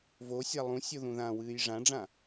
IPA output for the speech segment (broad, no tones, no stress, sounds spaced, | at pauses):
v o sʲ a lˠ ũ sʲ o ð ũ ð ã w ɨː j ʐ ã ɖ͡ʐ ã